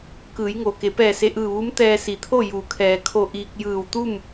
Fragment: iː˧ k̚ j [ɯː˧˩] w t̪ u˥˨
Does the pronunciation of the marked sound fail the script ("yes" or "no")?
no